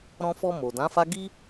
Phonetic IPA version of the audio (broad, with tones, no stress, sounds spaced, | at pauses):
ɾ ɔ̃˧ f ɔ˧ m o˨ d ã˨˦ f a˦ ɡ i˦